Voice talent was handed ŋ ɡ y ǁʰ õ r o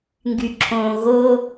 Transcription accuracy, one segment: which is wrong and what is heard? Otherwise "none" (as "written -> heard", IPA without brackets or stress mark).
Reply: r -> ɣ